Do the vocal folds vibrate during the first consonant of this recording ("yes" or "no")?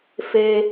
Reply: no